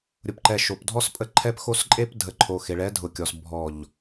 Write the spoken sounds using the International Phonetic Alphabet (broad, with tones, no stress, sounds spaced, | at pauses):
ɾʲ ʊ˨ p ǃ ɛ˨ ʃ o˨ p dʱ ɔ˦ s pʼ ə˦ ǃʰ ɛ˦ p x o˦ s ǃʼ e˦ p dʱ ə˨ ǃʰ o˨ x e˨ ɭ ɛ˨˦ dʱ ʊ˨ kʲ ɔ˨ s bʱ ɔ˨ ʎ